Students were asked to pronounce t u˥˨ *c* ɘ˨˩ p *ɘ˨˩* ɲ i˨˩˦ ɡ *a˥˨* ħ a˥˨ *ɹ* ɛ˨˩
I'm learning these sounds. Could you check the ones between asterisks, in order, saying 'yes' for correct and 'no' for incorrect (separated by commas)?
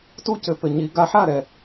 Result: yes, yes, no, no